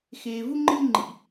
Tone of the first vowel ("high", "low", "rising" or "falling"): low